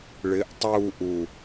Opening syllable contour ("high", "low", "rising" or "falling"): rising